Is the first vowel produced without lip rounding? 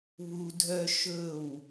no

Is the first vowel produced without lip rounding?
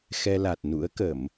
yes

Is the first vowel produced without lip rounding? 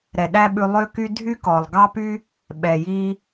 yes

